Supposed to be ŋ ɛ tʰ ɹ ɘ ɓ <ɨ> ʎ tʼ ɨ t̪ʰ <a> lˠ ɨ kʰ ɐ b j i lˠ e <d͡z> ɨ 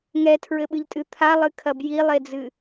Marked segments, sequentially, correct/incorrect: correct, correct, correct

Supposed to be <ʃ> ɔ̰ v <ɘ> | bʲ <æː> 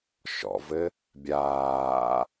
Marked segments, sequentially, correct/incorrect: correct, correct, incorrect: aː

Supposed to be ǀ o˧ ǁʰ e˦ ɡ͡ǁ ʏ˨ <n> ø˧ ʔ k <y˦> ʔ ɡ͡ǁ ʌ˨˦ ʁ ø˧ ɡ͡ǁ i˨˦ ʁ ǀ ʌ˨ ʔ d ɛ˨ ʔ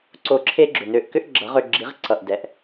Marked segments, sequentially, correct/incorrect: correct, incorrect: ʏ˦

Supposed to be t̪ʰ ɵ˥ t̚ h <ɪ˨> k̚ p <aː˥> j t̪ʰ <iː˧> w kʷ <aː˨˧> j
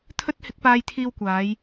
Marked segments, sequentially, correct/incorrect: incorrect: ɪ˨˥, incorrect: aː˧, correct, correct

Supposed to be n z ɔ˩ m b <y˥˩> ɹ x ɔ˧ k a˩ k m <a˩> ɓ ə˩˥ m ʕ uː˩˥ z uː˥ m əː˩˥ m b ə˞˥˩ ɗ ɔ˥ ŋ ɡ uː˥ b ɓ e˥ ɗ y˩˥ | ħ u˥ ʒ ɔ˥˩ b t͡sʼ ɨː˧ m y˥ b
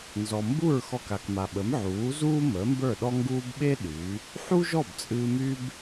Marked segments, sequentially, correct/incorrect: incorrect: u˥˩, correct

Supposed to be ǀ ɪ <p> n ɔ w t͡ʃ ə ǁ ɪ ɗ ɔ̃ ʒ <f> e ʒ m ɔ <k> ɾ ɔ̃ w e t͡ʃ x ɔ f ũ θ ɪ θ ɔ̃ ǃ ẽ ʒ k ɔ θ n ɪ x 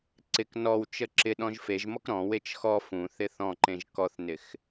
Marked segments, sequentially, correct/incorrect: incorrect: k, correct, correct

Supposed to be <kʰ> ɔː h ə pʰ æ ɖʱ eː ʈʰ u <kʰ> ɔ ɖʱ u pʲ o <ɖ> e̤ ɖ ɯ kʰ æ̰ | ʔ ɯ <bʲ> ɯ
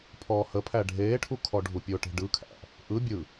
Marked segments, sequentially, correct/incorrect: incorrect: pʰ, correct, incorrect: ʈ, correct

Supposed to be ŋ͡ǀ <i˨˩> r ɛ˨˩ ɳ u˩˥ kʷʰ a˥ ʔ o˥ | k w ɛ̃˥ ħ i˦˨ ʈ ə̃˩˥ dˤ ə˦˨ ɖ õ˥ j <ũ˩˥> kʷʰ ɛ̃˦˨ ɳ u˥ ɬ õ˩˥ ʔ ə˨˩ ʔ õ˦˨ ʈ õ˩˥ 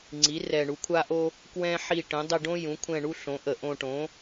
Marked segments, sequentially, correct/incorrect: incorrect: i˩˥, correct

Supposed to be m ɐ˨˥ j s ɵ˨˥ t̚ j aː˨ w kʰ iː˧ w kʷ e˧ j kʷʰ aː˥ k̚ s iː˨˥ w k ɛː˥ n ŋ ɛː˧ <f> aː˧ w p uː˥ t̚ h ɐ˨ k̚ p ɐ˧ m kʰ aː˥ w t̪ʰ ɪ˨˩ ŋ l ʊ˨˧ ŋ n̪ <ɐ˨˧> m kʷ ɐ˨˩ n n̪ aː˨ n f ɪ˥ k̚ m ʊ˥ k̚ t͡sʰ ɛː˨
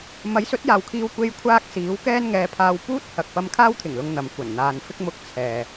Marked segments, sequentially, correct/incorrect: incorrect: pʰ, correct

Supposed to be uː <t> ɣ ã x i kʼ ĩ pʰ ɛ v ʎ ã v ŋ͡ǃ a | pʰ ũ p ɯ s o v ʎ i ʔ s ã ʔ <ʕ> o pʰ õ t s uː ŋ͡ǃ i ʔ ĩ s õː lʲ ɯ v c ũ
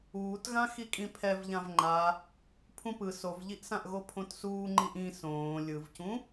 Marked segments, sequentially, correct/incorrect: correct, incorrect: ɣ

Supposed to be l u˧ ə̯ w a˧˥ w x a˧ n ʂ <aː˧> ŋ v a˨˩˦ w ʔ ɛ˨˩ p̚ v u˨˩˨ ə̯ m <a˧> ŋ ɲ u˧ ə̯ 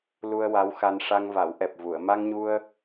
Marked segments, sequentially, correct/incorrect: incorrect: a˧, correct

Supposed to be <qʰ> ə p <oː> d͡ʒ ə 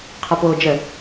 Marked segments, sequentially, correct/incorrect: correct, correct

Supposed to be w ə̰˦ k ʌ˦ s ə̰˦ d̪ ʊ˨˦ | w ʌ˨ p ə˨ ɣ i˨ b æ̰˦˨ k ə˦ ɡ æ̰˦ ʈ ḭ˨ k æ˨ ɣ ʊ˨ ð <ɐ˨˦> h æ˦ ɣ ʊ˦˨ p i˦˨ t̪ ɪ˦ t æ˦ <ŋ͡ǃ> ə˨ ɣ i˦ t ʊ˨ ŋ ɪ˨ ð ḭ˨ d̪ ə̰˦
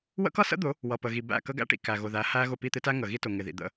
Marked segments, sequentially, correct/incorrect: incorrect: æ˨˦, incorrect: ŋ

